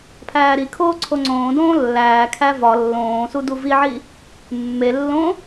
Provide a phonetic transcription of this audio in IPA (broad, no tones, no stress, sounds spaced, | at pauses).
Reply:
pʰ æː ɾ i kʰ oː ǀʰ o ŋ͡ǀ õː d õː lː æː kʰ æ v ɒ lː õː s u d u v i ʕ i | mː e lː õ